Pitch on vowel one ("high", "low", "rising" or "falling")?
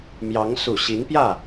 rising